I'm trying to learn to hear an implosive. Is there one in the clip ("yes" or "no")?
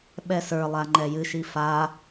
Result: yes